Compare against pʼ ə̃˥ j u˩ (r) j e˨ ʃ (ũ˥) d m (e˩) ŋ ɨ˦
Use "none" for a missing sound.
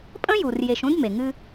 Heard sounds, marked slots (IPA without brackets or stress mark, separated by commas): r, ũ˥, e˩